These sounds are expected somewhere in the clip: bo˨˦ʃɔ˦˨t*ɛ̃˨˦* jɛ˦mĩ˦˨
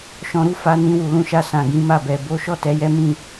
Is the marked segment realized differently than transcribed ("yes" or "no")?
yes